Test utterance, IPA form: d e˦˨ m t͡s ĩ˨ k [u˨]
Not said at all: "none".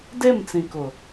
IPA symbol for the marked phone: ʊ˨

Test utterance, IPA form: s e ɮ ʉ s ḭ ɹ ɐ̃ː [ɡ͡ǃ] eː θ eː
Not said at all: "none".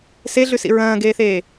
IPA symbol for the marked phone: ɡ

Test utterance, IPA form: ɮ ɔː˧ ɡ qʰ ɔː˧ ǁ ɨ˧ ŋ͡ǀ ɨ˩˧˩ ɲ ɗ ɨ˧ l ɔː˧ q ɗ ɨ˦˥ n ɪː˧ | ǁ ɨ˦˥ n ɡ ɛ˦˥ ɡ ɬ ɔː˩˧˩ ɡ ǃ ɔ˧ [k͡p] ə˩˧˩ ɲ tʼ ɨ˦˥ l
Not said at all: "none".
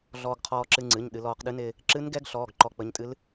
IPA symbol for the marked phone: k͡p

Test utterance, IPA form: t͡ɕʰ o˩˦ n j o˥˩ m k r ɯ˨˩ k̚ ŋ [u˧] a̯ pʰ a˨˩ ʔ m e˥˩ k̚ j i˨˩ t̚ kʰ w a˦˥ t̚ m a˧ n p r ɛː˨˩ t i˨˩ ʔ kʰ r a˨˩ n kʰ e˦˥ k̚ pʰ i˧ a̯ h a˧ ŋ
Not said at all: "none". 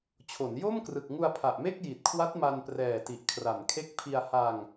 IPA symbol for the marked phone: u˧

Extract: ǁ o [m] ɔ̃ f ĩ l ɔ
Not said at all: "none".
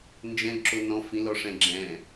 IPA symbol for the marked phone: n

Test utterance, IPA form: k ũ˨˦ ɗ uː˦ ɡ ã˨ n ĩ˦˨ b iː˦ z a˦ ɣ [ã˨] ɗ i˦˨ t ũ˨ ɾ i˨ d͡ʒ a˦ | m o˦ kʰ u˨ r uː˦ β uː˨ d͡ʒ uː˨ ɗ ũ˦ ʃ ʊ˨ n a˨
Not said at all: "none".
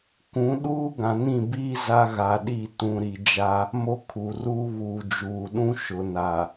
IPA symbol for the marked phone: a˨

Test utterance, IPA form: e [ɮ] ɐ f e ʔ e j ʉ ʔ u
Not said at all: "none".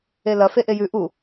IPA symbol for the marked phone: l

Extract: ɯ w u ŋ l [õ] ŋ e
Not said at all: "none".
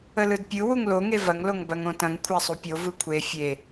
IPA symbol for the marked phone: o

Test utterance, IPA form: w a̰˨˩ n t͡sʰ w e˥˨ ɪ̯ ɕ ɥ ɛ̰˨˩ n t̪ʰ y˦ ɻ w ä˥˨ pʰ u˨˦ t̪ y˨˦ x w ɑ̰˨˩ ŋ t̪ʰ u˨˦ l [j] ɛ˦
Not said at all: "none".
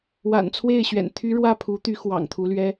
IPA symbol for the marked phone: ɥ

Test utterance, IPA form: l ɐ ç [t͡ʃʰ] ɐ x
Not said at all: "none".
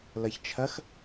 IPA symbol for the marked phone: t͡ʃʰ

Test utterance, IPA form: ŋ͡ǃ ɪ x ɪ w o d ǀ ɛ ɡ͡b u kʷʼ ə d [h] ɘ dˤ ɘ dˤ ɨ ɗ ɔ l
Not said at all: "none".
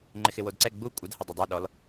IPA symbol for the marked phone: h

